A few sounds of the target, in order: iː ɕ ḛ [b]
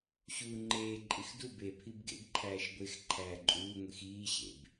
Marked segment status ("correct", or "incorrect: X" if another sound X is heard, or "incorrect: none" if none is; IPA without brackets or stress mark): correct